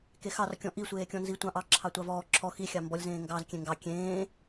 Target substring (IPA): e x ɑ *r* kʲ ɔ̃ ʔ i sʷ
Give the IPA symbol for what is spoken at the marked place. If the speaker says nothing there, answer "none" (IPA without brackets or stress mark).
r